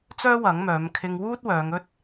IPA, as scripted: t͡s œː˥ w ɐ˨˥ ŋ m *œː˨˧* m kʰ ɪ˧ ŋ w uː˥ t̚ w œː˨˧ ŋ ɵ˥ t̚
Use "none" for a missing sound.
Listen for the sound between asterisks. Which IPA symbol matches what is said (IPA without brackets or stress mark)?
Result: œː˨˧